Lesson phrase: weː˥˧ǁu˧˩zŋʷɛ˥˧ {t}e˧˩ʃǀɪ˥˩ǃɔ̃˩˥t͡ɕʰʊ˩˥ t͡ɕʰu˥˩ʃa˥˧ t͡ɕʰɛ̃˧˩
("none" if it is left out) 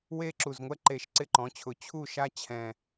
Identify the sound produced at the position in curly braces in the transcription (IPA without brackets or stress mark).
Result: ǃ